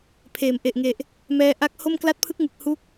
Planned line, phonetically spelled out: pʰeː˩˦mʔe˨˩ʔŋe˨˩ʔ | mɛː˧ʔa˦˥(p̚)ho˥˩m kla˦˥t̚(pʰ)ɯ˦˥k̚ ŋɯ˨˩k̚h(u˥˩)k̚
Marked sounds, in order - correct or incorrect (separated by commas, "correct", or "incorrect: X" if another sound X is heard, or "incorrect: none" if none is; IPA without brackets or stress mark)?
incorrect: k̚, correct, incorrect: u˦˥